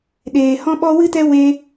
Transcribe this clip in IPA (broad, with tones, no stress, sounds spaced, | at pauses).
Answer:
ɗ eː˧ h ɔ̃˦ ɓ ɔ˦ w ɨ˦ t ɛ˦ w e˦